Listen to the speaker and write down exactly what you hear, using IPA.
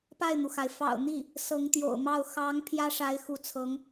pa˥˩ɪ̯n̪u˩xa˩ɪ̯ fɑ̰˨˩ʊ̯n̪i˥˩ | sɤ˧˥ŋt̪jo̰˨˩ʊ̯mɑ˥˩ʊ̯ xɑ˧˥ŋ pʰjä˥ʂa˧˥ɪ̯xu˧˥t͡sʰɤ˧˥ŋ

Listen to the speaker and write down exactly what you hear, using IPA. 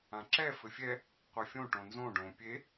ãǁɛ fɘfʲɛ | qʷefʲõ ʈõnzõ ɖõ pʲe

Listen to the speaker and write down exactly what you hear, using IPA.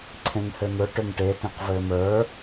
ǀʰẽŋhɘn̪ɵ ʈɵŋʈe tẽqvɘːmə˞

